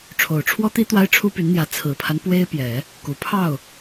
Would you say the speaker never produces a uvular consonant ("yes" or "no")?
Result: yes